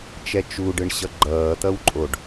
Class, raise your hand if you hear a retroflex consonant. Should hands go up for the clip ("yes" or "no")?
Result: yes